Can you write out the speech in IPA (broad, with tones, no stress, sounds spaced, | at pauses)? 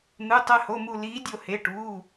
n̪ ɯ˩˧˩ tˤ ɛ˧˩ h o˩˧˩ m u˧˩ l iː˨˥ dʲ o˧˩ h e˩˧˩ ʈ uː˩˧˩